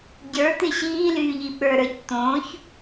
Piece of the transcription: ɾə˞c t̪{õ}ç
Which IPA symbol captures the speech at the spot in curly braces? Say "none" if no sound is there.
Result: õ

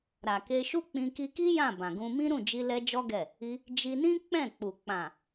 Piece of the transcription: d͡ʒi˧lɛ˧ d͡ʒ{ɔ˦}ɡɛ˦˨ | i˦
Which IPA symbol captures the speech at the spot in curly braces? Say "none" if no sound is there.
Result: ɔ˦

